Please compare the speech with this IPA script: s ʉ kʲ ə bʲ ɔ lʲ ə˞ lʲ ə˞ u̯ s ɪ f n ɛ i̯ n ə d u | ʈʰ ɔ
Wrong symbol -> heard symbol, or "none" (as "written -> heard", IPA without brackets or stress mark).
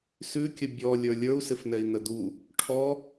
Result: none